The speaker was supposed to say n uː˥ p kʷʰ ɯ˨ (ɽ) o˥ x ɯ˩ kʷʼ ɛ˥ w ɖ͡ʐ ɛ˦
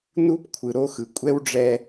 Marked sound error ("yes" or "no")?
yes